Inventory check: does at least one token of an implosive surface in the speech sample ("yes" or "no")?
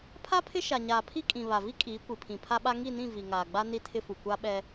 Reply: yes